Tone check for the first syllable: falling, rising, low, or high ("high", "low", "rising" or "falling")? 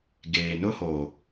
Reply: low